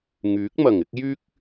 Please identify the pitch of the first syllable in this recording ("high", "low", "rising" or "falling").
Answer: rising